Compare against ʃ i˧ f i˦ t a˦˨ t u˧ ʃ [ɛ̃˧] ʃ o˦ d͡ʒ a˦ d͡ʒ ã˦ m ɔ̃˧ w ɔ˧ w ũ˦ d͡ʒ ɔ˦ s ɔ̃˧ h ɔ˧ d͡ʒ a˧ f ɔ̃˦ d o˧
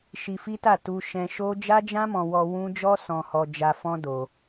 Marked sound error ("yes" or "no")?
no